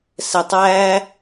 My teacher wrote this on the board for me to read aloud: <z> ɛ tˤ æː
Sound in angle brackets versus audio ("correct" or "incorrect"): incorrect